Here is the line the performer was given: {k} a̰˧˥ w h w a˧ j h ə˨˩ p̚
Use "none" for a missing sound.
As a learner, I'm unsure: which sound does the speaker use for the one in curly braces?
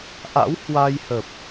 ʔ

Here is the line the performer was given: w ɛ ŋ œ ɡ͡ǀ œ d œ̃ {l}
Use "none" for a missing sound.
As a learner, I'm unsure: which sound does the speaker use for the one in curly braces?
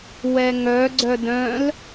l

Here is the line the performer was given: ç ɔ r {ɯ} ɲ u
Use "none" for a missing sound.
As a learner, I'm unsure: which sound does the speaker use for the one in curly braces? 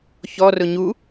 ʊ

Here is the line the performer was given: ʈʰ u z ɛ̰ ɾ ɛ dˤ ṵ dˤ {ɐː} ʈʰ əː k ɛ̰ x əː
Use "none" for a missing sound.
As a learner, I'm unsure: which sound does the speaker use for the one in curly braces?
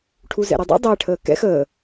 əː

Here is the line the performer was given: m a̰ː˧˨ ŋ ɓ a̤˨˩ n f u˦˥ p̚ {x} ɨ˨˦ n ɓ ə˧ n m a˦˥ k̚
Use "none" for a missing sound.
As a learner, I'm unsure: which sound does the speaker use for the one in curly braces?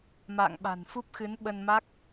x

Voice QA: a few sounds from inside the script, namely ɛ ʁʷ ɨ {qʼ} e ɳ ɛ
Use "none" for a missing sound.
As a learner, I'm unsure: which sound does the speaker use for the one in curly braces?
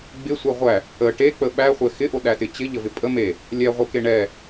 k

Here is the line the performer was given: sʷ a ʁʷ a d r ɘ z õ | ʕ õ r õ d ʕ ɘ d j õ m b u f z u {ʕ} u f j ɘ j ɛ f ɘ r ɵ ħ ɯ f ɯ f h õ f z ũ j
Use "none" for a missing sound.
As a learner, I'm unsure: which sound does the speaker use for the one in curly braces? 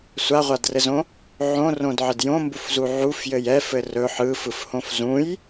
ʕ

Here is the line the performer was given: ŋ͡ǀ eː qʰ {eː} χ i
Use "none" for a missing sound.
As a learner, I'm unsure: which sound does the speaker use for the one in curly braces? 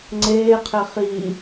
e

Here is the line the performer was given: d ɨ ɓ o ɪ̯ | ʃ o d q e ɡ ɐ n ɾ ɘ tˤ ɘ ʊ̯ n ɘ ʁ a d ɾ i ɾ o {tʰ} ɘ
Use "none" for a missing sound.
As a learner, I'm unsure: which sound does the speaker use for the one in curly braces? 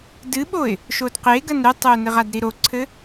ǀʰ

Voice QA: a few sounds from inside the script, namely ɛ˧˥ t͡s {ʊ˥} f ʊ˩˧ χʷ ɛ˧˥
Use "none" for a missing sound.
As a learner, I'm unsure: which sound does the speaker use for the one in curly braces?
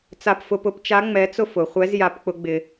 ʊ˥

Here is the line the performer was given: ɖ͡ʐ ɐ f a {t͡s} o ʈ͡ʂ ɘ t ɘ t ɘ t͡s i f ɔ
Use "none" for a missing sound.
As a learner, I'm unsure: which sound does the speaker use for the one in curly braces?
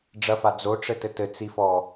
d͡z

